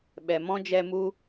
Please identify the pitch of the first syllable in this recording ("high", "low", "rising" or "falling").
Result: low